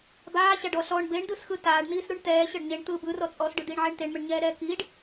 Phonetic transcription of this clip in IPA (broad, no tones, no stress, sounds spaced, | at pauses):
b aː ɕ a ɖ ɔ ɬ ɔ ɳ b e ɳ d ɯ s x ɯ t aː ɖ n̪ iː s ɾ u ɳ t̪ ɛː ɕ ɤ ɖ ɲ e ɳ t̪ ɯː b ɯ r ɔ t͡sʼ ɔ s ɖ ɯ d iː ɳ ʕ ɛ ɳ t e ɳ m ɯ ɳ ɲ ɛː ɾ ɛː k i ɖ